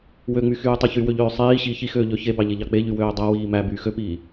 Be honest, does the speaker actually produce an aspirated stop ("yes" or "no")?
no